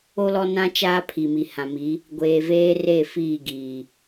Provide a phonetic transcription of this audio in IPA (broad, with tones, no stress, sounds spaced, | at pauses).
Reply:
o˦ l ɔ˦ n ã˦ t͡ʃ aː˦ pʰ i˨ m i˨ h ã˨ m i˨˦ | ɡʷ eː˨ v eː˦ r e˦˨ f iː˦˨ ɡ iː˨